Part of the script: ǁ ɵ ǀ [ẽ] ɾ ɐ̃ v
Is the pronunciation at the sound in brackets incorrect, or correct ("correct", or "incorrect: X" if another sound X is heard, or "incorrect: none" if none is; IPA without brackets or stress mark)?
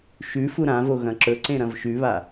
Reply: correct